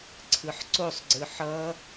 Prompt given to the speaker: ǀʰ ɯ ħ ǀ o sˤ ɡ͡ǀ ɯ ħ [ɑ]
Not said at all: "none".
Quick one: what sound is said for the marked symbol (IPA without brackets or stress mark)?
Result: ʌ